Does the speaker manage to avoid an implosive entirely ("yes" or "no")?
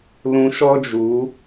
yes